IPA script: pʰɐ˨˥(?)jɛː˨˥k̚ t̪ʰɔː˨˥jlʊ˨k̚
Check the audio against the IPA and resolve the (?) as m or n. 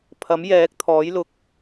m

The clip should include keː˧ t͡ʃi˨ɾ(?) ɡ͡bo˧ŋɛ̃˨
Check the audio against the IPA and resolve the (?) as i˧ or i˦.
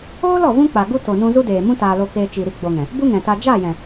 i˦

